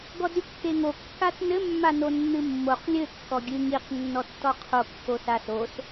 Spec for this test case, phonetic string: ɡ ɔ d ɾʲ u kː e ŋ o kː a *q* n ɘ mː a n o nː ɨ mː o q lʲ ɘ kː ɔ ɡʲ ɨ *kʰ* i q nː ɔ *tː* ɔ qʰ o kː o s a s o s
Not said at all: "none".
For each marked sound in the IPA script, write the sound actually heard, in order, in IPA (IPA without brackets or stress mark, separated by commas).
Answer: t, ŋ, tː